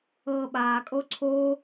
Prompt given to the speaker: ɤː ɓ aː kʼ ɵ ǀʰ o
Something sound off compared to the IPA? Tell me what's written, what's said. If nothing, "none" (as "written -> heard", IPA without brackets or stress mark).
ɵ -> o